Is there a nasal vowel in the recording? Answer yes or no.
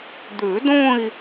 yes